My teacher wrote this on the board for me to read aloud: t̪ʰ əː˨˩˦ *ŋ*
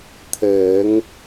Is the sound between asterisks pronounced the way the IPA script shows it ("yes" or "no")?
yes